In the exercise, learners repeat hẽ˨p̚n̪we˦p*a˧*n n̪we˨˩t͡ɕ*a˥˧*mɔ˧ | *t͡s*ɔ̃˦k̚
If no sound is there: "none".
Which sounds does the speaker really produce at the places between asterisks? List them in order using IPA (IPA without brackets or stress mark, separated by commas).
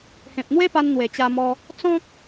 a˧, a˧, t͡s